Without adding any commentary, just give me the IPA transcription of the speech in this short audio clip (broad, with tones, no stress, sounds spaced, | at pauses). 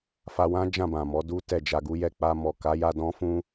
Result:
f a˧ w ã˦ d͡ʒ ã˦˨ b ã˨ m ɔ˨˦ d u˦ t ɛ˦˨ d͡ʒ a˧ ɡ u˦ j ɛ˦˨ k͡p a˧ m ɔ˨ k a˨˦ j a˧ d ɔ̃˦ f ũ˦